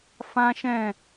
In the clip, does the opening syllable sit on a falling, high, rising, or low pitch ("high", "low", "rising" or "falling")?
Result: high